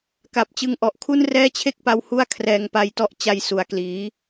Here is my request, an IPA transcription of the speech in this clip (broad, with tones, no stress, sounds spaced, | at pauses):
k a˨˩ p̚ t͡ɕ ɯ˧ ŋ ʔ ɔ˨˩ ʔ kʰ u˥˩ n r ɛː˥˩ t͡ɕʰ e˥˩ k̚ p a˧ w h u˥˩ a̯ kʰ r ɛː˧ ŋ p a˧ j t ɔ˦˥ ʔ t͡ɕ a˧ j s u˨˩ a̯ k l iː˩˦